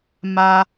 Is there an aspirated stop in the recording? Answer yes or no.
no